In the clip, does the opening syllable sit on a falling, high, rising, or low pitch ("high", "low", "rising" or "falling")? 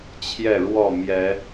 falling